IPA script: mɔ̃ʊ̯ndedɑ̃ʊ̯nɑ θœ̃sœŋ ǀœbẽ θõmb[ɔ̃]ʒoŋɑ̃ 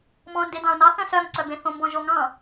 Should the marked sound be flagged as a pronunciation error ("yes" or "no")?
no